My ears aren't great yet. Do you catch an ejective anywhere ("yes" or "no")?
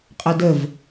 yes